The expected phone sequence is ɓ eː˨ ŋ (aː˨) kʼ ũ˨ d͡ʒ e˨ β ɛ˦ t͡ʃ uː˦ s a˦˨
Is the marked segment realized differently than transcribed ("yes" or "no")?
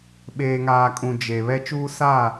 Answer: no